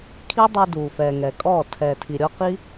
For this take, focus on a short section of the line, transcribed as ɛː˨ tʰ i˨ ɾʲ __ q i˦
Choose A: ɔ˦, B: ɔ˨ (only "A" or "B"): A